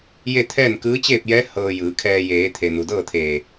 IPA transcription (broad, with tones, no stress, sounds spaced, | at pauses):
j e˥˨ t̪ʰ ɛː˥˨ n k ɯː˧˥ t͡ɕ eː˥˨ p̚ j ɛː˧˥ h ɤː˧ j ɯː˩˧ kʰ ɛː˧ j eː˩˧ t̪ʰ e˩ n u˩ d ɤː˥˨ t̪ʰ eː˧˩